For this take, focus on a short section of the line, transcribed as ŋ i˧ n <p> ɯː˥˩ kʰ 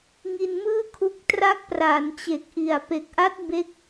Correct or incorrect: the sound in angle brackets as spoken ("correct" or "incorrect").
incorrect